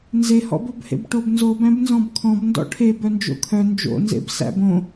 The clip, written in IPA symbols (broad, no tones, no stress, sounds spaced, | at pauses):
n z e h ɔ̰ b o b h ḛ b ʈ o b n z o b æ̃ b n z ɔ̃ b kʰ ɔ̃ b n d ɔ̰ ʈʰ e b œ n d͡ʒ o̰ kʰ œ n d͡ʒ o̰ n z ḛ b s æ̰ b õ